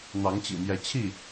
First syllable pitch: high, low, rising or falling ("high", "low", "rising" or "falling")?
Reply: rising